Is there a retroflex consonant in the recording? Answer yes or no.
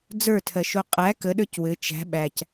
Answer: no